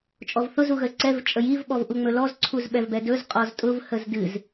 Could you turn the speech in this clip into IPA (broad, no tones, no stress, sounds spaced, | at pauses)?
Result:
t͡ʃʼ ɔ v θ ʊ z u ɣ ə z ǀ ɛ v t͡ʃʼ ə j i v ɓ ɔ v ʔ u ŋ͡m ɵ l ɔ z ǀʰ u z ɓ ɛ v b ɛ d ɵ z qʼ ɔ z tʼ ʊ v h ə z d ɨ z